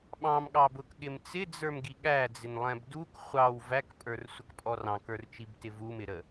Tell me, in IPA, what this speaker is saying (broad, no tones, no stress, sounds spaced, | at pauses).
ɓ ɑ̃ m ɠ ɑ b ʊ k ɠ ɪ m t͡s ɪ d͡z ə˞ m ɡ i ɠ æ d͡z ɪ n lˠ ɛ̃ b d u k χʷ ɑ w v æ k pʼ ə˞ r sʷ ə k pʼ ɔ r ɑ̃ k ə˞ r t͡ʃ i b t ɪ v u m ɪ ɾ ə